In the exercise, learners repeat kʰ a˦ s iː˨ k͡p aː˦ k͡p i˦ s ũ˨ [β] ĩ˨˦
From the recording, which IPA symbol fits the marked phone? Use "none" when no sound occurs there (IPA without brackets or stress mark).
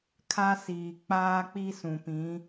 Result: p